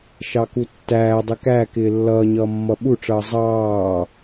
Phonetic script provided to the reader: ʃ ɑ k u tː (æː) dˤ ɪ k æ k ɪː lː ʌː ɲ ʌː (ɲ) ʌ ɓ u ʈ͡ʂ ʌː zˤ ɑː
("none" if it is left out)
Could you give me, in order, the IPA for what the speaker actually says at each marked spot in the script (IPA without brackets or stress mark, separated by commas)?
æː, mː